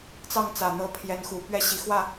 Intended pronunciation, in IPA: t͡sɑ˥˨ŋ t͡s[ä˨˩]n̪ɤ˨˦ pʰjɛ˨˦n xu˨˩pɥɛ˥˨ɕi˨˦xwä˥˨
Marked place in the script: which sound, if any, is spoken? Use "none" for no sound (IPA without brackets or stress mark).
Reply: ä˨˩